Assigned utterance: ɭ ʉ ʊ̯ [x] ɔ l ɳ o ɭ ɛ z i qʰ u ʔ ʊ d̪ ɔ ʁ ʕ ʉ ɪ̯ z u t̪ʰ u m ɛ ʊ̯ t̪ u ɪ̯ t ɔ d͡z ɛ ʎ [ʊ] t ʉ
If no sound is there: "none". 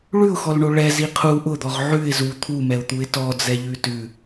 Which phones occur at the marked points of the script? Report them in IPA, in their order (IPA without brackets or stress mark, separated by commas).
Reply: x, ʉ